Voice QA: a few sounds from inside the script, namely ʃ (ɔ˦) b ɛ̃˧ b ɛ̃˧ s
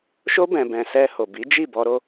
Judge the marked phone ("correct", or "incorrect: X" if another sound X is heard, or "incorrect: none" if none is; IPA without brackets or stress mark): incorrect: o˦